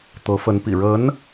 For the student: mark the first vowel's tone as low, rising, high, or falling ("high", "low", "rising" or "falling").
rising